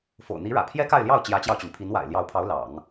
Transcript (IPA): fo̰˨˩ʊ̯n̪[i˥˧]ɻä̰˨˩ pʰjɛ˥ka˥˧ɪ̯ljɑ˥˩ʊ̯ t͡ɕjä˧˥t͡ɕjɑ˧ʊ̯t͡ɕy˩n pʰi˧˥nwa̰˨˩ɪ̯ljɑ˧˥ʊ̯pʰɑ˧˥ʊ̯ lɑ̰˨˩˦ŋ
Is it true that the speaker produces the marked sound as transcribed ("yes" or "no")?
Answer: no